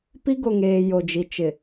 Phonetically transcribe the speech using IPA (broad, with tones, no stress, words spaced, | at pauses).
pi˦ɡo˨ŋeː˨ jo˨d͡ʒi˨ t͡ʃɪ˨